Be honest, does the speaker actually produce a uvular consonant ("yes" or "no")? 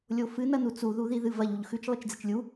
no